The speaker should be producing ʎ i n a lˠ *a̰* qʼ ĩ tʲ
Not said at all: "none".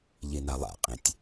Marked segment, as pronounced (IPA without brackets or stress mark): a̰